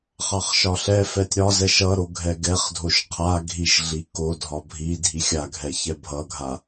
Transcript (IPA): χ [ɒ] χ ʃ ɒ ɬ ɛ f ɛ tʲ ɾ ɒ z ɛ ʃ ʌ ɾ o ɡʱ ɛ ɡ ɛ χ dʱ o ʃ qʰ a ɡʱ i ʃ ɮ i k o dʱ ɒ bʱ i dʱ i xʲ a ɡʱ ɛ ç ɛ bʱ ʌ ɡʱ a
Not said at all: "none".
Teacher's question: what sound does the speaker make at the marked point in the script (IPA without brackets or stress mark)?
ɑ